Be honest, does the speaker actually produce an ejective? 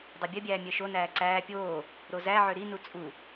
yes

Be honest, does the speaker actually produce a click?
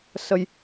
no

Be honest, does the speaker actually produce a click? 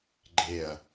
yes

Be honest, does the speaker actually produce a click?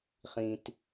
no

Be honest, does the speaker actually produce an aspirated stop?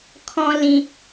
yes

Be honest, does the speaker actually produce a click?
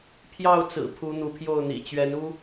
no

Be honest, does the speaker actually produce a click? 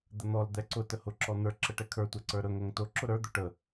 yes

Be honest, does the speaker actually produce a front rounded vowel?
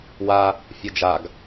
no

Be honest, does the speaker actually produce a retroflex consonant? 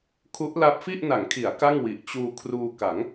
no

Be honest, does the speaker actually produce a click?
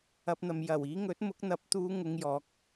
no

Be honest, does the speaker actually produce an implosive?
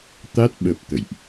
yes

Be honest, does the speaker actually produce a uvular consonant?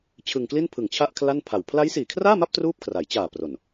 no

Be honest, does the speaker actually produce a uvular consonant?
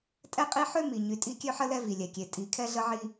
yes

